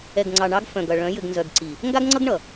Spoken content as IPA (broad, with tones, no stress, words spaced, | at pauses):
ɛ˨ɡŋ͡ǀɑ˨ɳɑ˦ɡ fœ̃˨ɡʌ˨ɭœ̃˨˦ jɘ˨ɡnzœ˨ɡǀi˨ | ŋɡa˦ɡŋ͡ǀʌ˦ɡɳʌ˨